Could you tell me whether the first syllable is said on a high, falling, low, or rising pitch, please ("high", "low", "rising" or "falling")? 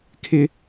high